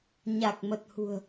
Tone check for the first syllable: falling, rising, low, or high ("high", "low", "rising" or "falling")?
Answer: low